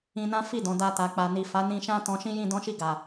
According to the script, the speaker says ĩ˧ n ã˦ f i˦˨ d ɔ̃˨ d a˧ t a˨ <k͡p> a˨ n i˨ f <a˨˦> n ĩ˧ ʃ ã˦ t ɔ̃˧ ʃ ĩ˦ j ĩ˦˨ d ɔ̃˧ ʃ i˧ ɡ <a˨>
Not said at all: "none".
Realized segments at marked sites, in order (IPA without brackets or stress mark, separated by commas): k͡p, a˨˦, a˨